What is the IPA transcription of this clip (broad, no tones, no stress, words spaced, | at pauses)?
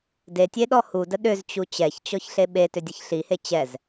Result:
detʲeɗɔ hudə ɗʏzt͡ɕu t͡ɕɛçt͡ɕɔçɬe ɓetʏdʲəç ɬihe t͡ɕɛz